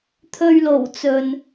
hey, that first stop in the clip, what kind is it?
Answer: aspirated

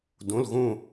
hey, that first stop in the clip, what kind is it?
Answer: plain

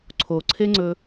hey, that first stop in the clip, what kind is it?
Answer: click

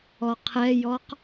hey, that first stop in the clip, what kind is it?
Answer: aspirated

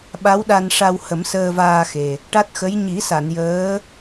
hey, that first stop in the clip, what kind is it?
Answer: implosive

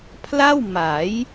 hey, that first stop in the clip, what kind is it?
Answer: aspirated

